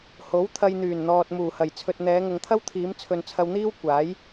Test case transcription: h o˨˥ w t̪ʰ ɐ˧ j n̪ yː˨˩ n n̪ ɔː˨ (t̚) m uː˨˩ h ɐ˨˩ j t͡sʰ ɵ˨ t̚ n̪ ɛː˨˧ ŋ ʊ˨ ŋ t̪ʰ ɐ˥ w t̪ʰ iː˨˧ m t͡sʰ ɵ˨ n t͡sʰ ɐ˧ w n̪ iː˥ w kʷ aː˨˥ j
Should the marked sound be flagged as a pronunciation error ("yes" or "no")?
no